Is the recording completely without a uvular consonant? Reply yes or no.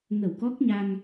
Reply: yes